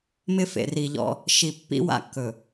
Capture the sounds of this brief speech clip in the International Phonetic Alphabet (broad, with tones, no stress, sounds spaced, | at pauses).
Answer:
m ɪ˦ f ḛ˨ r i˨ ʎ ɔ̰˦ | ʃ i˨ pː ḭ˦ w a̰˦˨ kː ɵ˨